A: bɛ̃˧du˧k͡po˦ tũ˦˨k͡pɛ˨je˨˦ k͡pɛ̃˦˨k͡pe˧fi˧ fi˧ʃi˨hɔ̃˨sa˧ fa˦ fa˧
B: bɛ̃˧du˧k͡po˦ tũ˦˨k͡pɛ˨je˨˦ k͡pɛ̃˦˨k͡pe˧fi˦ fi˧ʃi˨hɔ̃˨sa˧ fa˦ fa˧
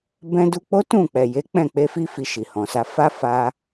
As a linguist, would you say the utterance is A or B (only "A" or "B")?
B